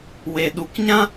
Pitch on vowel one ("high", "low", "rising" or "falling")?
low